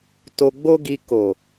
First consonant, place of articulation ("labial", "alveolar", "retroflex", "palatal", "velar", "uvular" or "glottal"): alveolar